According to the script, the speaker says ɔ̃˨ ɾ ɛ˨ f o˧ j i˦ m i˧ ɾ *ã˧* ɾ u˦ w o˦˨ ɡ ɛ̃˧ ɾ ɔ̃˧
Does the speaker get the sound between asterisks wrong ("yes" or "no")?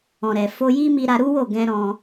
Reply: yes